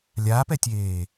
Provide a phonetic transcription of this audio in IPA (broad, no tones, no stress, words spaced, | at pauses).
lʲaːpɛtʲeː